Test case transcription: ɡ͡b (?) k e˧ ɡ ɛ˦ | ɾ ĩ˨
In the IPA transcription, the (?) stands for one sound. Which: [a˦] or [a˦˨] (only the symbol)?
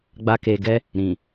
a˦